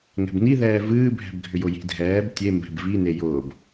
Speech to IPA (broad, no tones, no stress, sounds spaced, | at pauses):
ŋ ɛ̤ b n i ð ɛː v ɨː bʱ ɛ̤ b ɡʱ ʏ j ʊ j i̤ dʱ ɛː b tʲ e m b ɛ̤ b v i n e j ʊː b